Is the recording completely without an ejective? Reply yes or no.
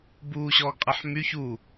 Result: no